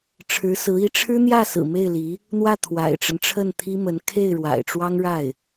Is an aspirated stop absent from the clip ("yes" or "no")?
no